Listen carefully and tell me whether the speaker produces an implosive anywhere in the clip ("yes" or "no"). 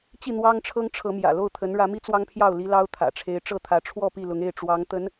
no